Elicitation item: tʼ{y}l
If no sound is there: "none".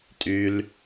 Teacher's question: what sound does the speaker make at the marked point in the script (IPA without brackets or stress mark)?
y